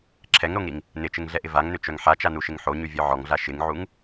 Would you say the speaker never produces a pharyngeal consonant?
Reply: no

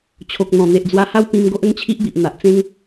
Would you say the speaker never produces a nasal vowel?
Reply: no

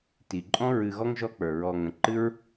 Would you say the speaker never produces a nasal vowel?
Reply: no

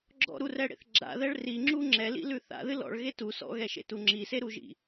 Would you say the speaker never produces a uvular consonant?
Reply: yes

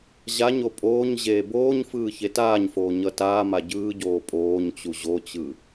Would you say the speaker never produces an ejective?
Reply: no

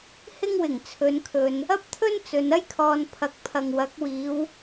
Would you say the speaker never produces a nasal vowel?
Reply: yes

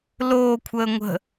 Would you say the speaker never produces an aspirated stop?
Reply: no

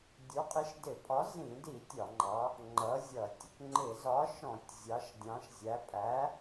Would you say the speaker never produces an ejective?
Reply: no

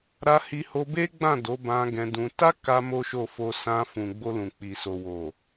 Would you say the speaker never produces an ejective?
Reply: yes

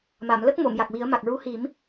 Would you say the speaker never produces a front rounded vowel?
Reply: yes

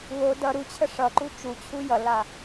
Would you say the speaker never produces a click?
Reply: no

